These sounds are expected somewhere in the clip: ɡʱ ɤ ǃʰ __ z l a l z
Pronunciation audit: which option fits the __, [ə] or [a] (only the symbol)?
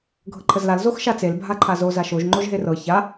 ə